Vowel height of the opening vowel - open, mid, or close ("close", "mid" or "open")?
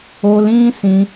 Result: mid